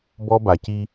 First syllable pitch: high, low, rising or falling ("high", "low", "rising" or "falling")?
high